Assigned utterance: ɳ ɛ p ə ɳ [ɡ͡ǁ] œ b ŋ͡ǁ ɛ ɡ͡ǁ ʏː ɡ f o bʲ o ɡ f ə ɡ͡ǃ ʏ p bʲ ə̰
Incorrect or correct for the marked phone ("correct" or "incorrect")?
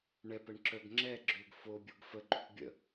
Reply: incorrect